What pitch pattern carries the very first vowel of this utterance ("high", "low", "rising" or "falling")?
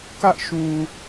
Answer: high